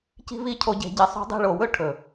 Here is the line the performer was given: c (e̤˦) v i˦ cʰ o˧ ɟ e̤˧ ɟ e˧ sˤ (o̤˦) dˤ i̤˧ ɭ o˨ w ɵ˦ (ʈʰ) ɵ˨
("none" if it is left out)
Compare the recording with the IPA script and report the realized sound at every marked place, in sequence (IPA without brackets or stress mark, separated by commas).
i̤˦, o̤˦, ʈʰ